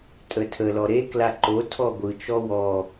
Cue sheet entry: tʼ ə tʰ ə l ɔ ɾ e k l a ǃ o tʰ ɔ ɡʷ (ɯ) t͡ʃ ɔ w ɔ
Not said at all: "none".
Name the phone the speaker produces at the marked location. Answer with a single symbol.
ɯ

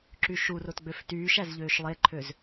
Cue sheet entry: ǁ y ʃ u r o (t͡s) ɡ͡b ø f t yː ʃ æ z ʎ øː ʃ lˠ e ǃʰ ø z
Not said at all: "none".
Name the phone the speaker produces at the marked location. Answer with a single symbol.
t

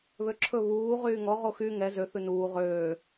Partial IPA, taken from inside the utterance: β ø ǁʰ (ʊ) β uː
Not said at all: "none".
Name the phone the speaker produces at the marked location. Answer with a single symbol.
ɵ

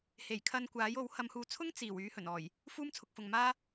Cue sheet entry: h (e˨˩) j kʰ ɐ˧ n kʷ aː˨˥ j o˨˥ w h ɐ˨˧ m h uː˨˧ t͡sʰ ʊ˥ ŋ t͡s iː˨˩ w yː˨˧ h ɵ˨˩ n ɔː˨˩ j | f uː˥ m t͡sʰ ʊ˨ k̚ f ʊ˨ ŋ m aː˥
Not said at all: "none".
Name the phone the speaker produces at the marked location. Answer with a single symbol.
e˨˩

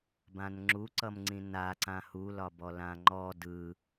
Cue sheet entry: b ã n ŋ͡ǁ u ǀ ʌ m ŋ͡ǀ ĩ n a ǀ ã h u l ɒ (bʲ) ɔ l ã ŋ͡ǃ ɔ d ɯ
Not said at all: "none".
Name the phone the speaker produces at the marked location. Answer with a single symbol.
b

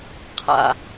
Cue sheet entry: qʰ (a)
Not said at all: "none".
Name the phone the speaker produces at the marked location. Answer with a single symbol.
a̰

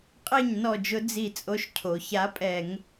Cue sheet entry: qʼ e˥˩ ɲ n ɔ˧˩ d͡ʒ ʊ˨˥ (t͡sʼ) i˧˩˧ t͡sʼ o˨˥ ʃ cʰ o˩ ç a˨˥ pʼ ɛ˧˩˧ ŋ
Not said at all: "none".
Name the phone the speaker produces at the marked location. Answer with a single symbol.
d͡z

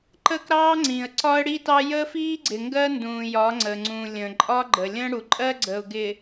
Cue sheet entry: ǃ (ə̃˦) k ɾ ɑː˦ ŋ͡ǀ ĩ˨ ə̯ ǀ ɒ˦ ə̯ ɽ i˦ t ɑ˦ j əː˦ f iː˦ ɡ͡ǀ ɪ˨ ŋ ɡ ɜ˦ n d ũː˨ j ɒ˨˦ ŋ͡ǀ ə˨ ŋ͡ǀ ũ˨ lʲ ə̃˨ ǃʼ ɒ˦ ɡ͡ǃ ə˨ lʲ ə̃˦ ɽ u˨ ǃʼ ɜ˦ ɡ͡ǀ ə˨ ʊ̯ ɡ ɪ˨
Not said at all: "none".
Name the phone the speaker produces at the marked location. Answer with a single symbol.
ə˦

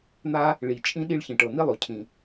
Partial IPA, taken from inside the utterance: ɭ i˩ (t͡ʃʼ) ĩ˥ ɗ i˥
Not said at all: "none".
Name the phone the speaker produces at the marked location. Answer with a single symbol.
t͡ʃʼ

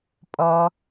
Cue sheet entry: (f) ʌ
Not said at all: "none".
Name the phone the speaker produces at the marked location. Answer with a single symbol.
pʼ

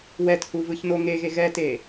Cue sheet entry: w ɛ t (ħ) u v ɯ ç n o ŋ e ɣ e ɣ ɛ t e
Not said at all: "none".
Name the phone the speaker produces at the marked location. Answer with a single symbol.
h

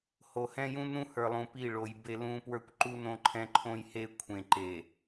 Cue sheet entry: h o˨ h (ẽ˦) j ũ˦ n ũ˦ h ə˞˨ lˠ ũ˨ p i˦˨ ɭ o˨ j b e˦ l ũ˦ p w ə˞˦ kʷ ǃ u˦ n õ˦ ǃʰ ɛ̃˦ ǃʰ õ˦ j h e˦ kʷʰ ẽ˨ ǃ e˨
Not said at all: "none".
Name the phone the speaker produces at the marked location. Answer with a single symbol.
ɛ̃˦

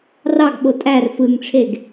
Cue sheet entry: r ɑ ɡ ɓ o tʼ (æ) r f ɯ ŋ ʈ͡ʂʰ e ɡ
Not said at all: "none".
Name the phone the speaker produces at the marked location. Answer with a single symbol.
æ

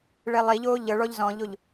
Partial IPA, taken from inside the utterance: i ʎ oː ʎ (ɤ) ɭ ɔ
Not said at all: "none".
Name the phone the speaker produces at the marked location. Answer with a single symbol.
ɤ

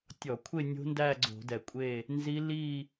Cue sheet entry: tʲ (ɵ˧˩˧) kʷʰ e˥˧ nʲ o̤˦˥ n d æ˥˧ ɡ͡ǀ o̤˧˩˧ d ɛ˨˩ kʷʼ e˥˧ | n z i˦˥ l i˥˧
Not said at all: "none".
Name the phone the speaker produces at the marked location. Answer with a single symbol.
ɔ˧˩˧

